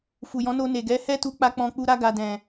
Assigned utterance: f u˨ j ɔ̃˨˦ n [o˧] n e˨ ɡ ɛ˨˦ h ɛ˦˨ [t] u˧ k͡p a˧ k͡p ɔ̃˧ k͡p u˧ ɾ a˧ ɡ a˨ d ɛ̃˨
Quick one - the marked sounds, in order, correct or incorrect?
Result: correct, correct

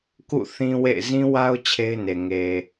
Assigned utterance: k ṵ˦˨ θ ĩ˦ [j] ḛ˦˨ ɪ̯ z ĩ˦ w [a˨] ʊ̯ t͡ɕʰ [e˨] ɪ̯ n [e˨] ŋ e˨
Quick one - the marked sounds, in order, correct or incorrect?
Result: incorrect: w, incorrect: a˦, incorrect: e˦, correct

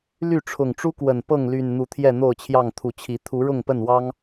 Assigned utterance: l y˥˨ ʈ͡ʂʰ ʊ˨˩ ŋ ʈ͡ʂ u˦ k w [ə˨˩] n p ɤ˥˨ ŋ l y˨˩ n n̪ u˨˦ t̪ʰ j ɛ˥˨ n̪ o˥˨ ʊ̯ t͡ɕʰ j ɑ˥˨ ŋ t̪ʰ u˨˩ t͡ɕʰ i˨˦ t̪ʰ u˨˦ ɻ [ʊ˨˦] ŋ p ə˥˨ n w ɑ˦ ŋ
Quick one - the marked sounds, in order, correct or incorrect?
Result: correct, incorrect: ʊ˥˨

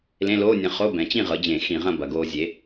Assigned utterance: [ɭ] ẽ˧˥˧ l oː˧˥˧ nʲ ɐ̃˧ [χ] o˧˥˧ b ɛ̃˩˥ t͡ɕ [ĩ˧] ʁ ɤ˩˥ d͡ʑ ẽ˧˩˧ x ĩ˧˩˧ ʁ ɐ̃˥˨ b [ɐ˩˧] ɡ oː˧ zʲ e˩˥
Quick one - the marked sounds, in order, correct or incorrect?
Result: incorrect: l, correct, incorrect: ĩ˥˨, correct

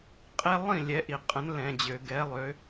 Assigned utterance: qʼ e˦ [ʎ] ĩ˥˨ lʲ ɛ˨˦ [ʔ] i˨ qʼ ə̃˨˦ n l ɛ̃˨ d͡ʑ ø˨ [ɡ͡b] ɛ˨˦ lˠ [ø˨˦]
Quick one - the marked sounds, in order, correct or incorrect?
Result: incorrect: lˠ, correct, incorrect: ɡ, correct

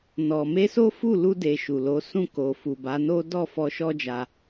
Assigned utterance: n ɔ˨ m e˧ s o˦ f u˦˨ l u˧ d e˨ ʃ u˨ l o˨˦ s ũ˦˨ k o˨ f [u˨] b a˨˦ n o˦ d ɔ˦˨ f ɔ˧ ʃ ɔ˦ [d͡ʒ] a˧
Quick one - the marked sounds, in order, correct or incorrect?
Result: correct, correct

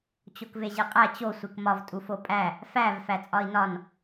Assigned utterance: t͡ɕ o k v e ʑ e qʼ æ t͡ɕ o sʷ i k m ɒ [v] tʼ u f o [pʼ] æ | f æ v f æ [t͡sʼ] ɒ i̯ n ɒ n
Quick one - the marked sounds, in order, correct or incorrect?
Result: correct, correct, correct

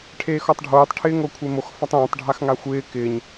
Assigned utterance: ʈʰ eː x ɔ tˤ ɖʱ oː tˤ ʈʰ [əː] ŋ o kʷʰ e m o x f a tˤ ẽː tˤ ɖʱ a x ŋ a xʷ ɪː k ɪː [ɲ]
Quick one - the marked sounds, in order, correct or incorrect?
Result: incorrect: ɪː, correct

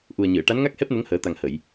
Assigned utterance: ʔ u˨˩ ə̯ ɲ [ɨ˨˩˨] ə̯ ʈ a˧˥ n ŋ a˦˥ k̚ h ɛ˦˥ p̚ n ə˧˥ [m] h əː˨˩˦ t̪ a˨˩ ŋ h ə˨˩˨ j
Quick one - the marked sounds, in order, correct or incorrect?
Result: correct, incorrect: ŋ

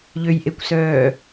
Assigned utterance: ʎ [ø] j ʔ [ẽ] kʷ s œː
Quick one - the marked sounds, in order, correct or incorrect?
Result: correct, incorrect: e

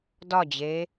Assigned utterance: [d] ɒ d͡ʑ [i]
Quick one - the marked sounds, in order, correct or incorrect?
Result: correct, incorrect: e

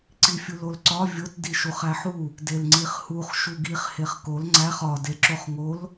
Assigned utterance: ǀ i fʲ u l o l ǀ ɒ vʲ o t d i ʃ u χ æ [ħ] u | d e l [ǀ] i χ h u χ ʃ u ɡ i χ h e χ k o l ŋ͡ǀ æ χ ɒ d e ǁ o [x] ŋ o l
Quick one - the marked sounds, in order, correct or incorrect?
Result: correct, incorrect: ŋ͡ǀ, incorrect: χ

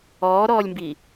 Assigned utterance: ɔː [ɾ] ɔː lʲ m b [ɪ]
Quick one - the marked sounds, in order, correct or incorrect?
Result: correct, incorrect: i

